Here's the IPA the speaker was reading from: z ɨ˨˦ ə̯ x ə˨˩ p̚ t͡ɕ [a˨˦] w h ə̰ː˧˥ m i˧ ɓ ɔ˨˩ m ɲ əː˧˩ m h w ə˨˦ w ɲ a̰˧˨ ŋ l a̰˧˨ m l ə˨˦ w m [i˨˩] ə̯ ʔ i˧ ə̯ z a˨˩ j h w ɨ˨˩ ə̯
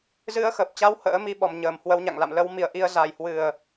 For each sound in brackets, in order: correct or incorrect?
correct, correct

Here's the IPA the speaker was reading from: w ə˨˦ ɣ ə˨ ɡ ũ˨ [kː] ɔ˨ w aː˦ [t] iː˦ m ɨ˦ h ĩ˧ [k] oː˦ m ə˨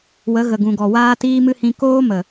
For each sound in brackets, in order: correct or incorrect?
incorrect: ɡ, correct, correct

